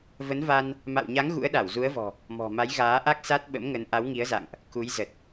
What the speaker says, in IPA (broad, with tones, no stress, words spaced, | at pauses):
və˨˦nva˧n | ma̰˧˨wɲa˨˦ŋ ɣṵ˧˥ə̯ɗa˧˩wzu˨˦ə̯vɔ̤˨˩ | mɔ̤˨˩ ma˨˦jɣaː˨˦ʔa˦˥k̚ sa˦˥t̚ɓə̰˧˥mŋə˨˦n ʔa˨˦wŋi˨˦ə̯za̰˧˨ŋʔ | ku˨˦jzə˨˩t̚